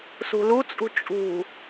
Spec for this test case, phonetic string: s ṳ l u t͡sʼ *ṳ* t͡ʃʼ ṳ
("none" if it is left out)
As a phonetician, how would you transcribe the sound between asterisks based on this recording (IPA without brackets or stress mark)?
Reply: ṳ